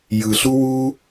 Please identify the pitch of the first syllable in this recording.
low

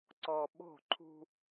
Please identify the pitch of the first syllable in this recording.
low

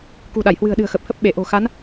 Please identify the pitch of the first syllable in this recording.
low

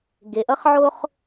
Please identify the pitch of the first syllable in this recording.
low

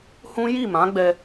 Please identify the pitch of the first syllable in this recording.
high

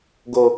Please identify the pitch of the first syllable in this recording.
high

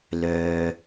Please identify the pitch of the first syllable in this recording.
low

